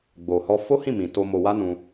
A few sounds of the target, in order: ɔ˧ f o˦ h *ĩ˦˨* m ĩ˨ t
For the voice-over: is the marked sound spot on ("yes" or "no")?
yes